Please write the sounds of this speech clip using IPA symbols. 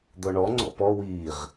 d̪ɔɳɔŋ͡ǀɔ̰ pɔ wiːʁ

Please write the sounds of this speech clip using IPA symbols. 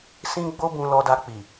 sĩ˦ɡ͡bo˦ bũ˧lɔ˧da˧k͡pi˨

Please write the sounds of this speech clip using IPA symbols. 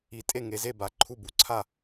i˩˥tʼe˥˨ ŋe˩˥ze˥˨ba˩˥ ǃʰu˥˨ bu˩˥ǀʰa˥˨

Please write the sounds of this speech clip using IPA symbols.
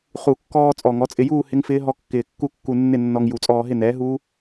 χu˨˩˦kːɔː˧ t͡sʼɔ˨˩ŋɔ˩˥t͡sʼɪ˧juː˥˧ hɪ˦˥ŋfɪː˦˥ ɦɔ˧kːɪː˨˩ kːu˥˧kːu˧ nːɪ˥˧nːɔ˧ŋ ju˨˩˦t͡sʼɔː˧ɦɪ˥˧nɛː˩˥ ɦuː˦˥

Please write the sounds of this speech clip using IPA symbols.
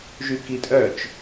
ʒykitʼœt͡ʃ

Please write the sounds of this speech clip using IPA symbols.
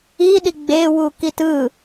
iːɗi ɡ͡beːwuː kitɯ

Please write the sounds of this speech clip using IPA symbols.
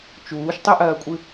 t͡ʃuːʃtˤɵʔɐːkʷʼɨ

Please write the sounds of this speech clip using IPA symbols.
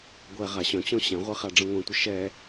ɡʷɛ ʁaɕœ̃t͡ɕɔ̃ ɕɛ̃ʁʷe χaɖ͡ʐə̃ŋʷɛ̃tʷɪ ʃɛ

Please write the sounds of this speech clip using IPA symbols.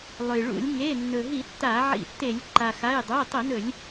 lˠɵ˩jɭṵ˧˩˧lʲ ŋe˩˧˩ nːɵ˩ɦi˧˩˧ tːaː˧˩˧ʕḭ˧˩˧ tːe˧˩˧lʲ ǃa˩xa˩˧˩j dˤʉ˩˧˩jtˤi˧˩˧nɵ˧˩˧lʲ

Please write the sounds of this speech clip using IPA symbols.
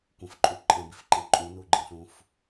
kʷə̃fǃʼu ǃʼɛ̃bifǃɛ̃ ǃʼũnuɡ͡ǃĩɬũf

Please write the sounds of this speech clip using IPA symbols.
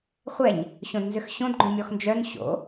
χʷɛɲ | ɕõdnzʏxɕõdɡ͡ǃõ mʲɔxnd͡ʒœn ɕo̰

